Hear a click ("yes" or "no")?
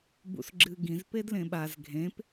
yes